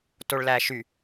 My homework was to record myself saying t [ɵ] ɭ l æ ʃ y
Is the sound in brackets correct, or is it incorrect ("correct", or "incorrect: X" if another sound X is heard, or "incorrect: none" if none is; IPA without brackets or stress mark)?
incorrect: o